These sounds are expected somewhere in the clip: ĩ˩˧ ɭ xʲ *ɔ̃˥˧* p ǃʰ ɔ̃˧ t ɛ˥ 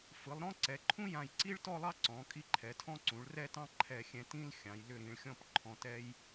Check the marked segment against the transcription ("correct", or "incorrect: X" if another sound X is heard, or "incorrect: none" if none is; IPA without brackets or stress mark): correct